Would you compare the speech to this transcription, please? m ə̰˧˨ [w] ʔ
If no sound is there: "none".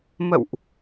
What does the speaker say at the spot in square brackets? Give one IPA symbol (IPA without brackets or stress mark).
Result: w